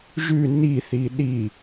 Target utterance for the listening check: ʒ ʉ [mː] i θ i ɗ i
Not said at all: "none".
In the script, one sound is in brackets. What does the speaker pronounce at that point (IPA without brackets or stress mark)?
n